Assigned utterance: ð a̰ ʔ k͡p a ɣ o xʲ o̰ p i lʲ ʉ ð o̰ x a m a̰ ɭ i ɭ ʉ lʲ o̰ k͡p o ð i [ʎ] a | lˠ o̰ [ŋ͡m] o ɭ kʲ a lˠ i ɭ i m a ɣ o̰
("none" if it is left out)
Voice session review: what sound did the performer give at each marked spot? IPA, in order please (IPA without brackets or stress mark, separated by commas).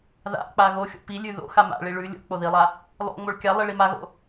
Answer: lˠ, ŋ͡m